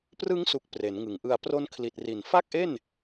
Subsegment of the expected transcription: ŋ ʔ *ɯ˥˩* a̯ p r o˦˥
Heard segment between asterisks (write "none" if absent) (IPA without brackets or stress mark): ɯ˧